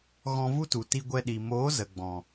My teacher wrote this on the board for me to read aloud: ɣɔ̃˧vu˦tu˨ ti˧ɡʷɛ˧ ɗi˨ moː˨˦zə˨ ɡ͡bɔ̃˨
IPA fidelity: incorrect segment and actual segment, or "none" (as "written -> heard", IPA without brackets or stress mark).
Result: none